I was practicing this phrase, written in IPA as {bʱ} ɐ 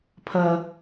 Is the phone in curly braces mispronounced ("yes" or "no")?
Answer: yes